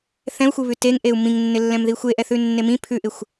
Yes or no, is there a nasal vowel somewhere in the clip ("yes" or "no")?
yes